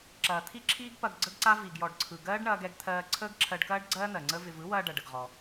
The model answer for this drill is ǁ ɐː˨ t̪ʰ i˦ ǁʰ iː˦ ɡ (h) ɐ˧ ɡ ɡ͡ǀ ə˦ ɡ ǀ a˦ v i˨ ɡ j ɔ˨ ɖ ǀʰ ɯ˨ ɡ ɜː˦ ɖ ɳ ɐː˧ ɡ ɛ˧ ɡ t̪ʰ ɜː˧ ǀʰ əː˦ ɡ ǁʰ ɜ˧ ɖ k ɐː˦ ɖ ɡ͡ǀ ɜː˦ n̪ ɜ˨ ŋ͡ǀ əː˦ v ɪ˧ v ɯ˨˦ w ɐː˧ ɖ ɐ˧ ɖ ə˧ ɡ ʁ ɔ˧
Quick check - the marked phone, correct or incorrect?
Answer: incorrect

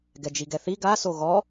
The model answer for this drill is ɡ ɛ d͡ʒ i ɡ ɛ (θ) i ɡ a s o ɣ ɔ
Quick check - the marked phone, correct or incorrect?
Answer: correct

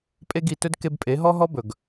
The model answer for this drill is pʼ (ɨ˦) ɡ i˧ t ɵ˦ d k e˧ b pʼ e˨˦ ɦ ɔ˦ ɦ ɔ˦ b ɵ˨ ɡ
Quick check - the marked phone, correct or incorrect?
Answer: incorrect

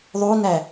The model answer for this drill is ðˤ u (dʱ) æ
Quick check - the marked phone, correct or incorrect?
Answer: incorrect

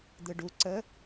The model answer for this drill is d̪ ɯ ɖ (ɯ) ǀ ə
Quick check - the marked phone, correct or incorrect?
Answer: incorrect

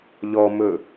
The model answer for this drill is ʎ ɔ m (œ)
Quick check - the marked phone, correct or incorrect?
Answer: incorrect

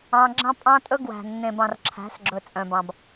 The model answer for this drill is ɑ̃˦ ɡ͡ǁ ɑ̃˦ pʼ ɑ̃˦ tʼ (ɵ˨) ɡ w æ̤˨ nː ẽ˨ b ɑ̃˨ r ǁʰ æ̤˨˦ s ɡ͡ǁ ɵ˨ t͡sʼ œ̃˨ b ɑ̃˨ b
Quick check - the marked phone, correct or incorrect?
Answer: incorrect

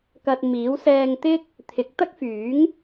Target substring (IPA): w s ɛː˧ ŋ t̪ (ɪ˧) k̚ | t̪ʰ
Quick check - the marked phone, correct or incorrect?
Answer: incorrect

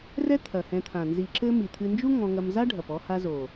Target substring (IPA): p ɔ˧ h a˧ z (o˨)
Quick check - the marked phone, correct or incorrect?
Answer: correct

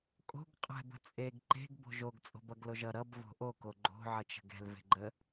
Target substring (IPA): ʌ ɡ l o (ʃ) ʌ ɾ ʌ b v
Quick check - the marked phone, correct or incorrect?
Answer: incorrect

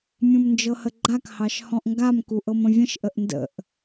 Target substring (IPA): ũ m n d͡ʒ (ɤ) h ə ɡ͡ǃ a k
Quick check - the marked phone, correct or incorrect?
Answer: correct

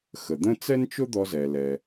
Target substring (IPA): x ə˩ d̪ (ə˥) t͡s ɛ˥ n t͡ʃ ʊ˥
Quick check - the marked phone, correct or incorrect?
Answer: incorrect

